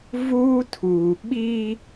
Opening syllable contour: high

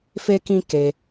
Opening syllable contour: high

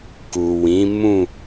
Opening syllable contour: low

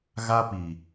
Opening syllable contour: high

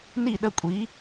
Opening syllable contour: falling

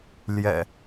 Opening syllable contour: low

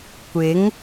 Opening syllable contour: rising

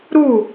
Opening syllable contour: falling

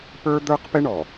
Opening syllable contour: high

